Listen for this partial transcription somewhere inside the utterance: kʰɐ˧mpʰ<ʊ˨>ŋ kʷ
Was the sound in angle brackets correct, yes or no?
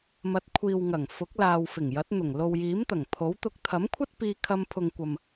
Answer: yes